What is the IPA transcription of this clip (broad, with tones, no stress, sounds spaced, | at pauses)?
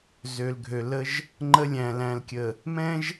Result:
z ø˨ l ɡʱ ø˨ l ə˦ ʒ | ŋ͡ǃ ə˦ lʲ æ̃˨ l æ̃˨ l kʲ ə˨ | m ɛ̃˦ ʒ